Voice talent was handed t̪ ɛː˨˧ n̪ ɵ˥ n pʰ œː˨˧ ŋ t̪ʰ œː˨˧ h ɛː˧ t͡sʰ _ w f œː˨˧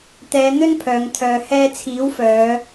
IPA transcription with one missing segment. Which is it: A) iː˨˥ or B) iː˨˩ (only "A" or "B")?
A